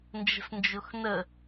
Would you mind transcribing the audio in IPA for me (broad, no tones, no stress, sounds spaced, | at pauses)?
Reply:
n d͡ʒ ə̤ s n d͡ʒ ʊ x n ə